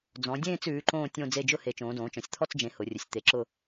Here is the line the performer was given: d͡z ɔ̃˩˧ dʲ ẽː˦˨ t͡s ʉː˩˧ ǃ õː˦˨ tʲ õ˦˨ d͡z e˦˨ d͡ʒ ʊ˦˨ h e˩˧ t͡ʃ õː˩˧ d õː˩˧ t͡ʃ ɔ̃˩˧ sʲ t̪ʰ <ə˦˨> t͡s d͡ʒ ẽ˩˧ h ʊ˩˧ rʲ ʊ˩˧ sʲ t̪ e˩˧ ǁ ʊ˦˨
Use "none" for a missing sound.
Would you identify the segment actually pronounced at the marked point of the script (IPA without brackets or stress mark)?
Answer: ɔ˦˨